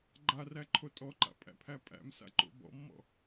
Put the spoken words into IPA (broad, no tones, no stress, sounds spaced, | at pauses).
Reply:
ɡ͡ǃ a r æ ǃʰ o tʼ ɔ ǃ a̰ pʼ æ̰ pʰ æ pʼ æ̰ m s a̰ ǃ o̰ b ɔ̰ mː ɔ̰